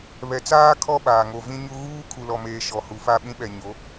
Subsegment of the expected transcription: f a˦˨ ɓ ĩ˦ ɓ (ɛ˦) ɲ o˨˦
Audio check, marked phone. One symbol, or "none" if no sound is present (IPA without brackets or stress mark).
ɛ˨